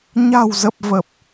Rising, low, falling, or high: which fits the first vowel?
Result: low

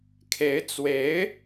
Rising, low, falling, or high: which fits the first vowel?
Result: rising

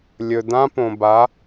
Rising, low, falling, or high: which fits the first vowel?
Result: low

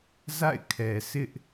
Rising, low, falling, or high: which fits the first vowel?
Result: falling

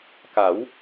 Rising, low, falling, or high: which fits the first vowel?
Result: rising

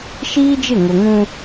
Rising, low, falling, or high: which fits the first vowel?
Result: high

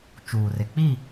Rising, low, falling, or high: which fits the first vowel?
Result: low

